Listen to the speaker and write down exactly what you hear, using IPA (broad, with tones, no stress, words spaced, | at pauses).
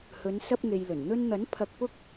hɵ˨˧n sɐ˥p̚ŋe˧jlɵ˨˩n n̪ɵ˧nn̪ɐ˨˥n pʰɐ˧k̚pʊ˥k̚